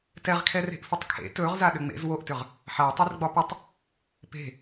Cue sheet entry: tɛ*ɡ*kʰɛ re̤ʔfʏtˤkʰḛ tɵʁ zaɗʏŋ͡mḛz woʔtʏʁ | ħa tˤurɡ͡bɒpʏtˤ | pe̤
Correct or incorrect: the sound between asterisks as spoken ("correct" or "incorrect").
incorrect